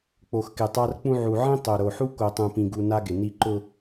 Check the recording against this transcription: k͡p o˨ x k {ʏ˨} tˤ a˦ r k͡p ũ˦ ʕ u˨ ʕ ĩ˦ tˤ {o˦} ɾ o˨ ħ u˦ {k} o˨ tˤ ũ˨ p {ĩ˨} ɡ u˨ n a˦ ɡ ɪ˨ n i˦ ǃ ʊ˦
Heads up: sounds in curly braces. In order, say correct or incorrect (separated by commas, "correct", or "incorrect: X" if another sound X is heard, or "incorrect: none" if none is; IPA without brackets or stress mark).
incorrect: ɪ˨, incorrect: o˨, correct, correct